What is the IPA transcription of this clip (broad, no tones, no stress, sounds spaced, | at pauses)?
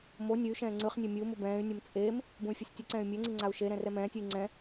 m o nʲ ɯ y̯ ʃ ɛ̃ː ŋ͡ǀ ɯ χ nʲ ɛ mʲ ɯ u̯ m u b ɛ̃ː y̯ nʲ ʌ m t͡sʼ eː m | b ũ y̯ fʲ ɛ sʲ tʲ ɯ ǀ ɛ̃ː y̯ mʲ ɛ ŋ͡ǀ i ŋ͡ǀ a u̯ ʃ e ɾ ɛ̃ r ɛ m ɛ̃ː tʲ ɯ i̯ ŋ͡ǀ ɛ̃